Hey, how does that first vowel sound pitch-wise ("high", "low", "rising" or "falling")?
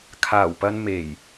low